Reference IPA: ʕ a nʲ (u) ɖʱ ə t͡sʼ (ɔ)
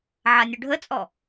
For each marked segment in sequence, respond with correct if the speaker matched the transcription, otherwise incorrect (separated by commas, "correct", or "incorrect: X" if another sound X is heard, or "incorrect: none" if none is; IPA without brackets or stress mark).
correct, correct